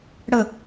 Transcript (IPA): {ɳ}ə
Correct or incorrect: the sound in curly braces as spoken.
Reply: incorrect: ɽ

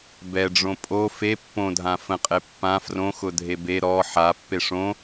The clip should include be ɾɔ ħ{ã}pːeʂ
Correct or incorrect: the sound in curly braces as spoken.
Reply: incorrect: a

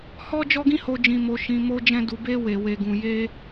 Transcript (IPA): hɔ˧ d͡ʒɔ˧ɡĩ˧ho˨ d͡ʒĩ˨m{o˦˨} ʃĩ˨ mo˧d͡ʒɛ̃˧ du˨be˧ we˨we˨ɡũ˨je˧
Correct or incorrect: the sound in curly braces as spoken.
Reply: incorrect: o˨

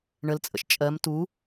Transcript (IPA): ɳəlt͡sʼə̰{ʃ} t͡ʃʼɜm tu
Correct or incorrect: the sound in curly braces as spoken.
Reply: correct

